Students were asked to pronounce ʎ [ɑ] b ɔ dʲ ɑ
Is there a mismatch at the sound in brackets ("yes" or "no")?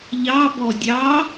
no